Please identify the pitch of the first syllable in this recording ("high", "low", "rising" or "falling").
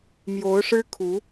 rising